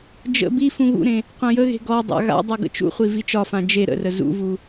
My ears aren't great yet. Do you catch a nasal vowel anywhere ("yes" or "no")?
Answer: yes